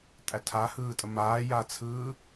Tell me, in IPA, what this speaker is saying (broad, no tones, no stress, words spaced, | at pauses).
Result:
tʼætʰahɯːtʼə maːjat͡sʰɯː